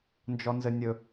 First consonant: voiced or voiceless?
voiced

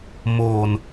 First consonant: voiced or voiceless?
voiced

